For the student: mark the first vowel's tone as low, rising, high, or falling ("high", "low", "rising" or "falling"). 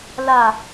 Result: falling